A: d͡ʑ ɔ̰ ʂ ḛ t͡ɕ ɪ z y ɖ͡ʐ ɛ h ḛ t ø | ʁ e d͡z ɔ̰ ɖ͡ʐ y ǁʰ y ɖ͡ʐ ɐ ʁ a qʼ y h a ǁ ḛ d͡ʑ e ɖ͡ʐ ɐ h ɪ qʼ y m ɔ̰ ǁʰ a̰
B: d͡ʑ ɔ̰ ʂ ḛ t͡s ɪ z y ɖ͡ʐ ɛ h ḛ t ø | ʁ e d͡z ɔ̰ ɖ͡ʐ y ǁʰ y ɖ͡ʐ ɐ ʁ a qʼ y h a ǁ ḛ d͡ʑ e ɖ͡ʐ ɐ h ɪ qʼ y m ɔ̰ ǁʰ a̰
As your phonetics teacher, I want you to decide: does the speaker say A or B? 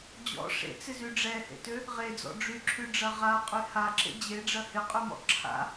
B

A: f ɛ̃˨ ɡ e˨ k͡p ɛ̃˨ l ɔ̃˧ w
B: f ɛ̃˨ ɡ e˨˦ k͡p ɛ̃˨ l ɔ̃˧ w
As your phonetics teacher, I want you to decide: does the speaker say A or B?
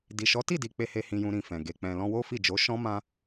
A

